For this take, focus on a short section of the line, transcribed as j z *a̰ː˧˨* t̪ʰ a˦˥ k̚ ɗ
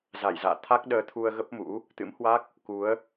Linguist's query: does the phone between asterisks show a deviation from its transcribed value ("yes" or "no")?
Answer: no